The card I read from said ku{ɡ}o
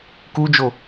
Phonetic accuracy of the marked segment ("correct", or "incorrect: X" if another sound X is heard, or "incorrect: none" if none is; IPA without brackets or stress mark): incorrect: d͡ʒ